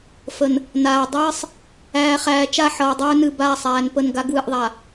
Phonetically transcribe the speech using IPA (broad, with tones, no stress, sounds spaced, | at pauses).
f ə˨ n | n aː˨ dˤ ɨː˦ sˤ | æː˨ χ æː˨ t͡ʃ a˦˨ ħ ʌː˨ dˤ ɵː˦ n ɨ˨ b aː˦˨ sˤ æː˨ n p ə˦˨ n ɡ a˦ ɡ w ɨ˨ ʔ ðˤ a˨